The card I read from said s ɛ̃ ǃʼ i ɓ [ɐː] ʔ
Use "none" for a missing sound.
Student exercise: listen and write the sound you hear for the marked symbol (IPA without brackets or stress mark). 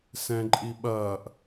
ɐː